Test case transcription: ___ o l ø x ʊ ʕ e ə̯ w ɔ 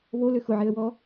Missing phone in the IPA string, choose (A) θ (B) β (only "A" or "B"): B